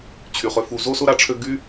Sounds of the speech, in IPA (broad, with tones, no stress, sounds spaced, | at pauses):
t͡ɕʰ y˩ χ ø˨ f u˨ z o˥ s ʊ˥ ɾ a˨ ʈ͡ʂʰ ø˦ ɡ y˥